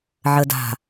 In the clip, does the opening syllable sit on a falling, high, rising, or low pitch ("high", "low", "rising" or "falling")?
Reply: low